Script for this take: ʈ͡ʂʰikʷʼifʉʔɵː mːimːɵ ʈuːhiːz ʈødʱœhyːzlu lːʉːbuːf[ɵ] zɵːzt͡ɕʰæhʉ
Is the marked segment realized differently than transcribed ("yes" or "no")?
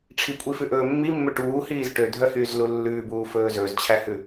yes